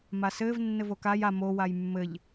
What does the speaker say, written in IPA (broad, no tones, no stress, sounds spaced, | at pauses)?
m a s ɘː v nː ɘ v o k a j a m o w a j mː ɘ ʎ